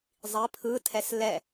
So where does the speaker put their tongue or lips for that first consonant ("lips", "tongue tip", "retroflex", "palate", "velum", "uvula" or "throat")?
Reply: tongue tip